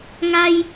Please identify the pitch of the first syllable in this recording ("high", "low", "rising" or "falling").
high